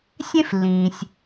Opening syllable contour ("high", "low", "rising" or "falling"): high